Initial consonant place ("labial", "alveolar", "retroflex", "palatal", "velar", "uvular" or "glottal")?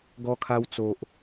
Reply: velar